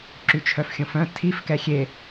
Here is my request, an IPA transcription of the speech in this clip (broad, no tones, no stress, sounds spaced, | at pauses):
ǁ y t͡ʃʰ œ f xʲ õ f œ̃ tʰ i f k ɛ xʲ e